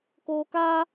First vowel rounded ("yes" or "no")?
yes